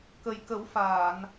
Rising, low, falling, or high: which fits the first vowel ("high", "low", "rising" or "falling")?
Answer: low